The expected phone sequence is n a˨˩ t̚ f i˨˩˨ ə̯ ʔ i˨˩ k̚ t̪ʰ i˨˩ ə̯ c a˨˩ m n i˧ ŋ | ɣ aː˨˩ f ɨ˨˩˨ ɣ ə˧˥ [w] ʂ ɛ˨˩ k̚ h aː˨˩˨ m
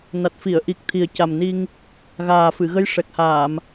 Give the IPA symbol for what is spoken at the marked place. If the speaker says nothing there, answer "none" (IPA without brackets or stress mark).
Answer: j